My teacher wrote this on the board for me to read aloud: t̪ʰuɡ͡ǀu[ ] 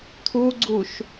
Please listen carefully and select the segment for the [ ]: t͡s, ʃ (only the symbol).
ʃ